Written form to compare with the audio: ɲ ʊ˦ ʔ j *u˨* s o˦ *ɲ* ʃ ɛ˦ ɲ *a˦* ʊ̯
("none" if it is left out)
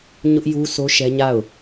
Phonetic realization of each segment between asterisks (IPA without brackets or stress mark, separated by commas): u˦, none, a˦˨